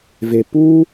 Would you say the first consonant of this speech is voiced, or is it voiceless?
voiced